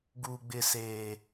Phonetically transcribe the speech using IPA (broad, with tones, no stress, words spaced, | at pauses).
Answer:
ɡuː˦ɡ͡bɪ˦seː˦